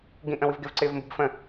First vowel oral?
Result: no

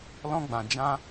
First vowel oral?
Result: no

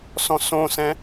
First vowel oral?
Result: no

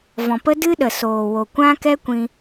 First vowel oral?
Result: no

